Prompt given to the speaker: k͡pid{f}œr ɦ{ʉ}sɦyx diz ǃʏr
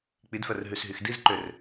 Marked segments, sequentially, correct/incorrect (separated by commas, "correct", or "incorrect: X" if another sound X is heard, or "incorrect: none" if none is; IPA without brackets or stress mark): correct, correct